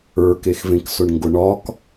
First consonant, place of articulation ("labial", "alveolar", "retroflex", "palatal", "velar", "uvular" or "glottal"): velar